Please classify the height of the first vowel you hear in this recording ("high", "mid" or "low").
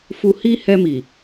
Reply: high